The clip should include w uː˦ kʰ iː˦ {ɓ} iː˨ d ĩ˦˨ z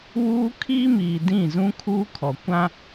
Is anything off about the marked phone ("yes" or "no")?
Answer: yes